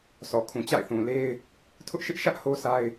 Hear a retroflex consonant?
no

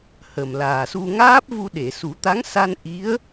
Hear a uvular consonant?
no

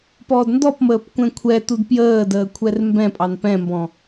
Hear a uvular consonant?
no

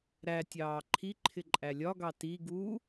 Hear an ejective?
yes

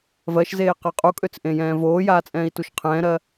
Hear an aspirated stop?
yes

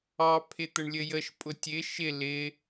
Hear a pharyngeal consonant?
no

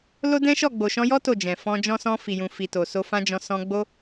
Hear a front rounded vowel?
no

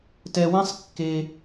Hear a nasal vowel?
yes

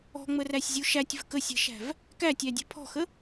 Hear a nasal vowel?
no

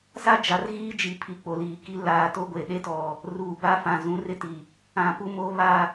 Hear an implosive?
yes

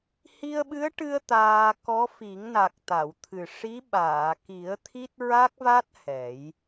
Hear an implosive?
yes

